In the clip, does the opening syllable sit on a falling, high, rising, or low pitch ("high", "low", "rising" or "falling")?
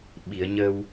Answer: low